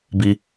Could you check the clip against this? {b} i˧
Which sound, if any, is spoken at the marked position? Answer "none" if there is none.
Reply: b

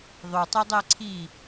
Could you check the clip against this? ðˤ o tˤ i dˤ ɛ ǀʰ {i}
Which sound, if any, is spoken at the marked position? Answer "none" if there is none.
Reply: i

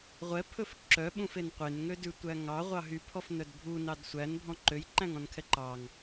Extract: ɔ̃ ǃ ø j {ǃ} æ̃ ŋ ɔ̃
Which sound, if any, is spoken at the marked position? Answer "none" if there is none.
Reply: ǃ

